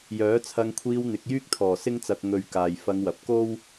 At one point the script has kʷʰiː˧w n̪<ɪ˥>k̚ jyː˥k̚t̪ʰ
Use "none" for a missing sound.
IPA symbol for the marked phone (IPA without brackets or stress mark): ɪ˨˥